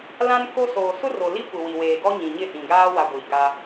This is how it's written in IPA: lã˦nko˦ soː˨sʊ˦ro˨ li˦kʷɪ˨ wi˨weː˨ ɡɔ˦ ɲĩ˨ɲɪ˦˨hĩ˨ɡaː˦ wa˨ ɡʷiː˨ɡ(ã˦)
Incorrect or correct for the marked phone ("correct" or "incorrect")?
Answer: incorrect